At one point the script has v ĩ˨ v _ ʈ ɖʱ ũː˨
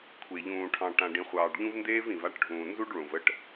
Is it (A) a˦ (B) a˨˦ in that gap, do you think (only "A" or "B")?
A